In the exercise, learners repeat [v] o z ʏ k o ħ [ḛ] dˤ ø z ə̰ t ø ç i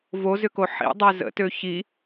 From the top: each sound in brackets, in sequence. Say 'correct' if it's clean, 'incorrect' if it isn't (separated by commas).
correct, incorrect